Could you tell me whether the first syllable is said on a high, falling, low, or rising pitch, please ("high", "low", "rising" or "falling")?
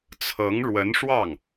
rising